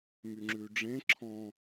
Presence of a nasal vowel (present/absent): present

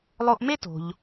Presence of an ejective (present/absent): absent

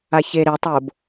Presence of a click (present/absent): absent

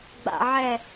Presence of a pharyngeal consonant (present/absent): present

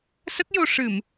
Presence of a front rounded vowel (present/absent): absent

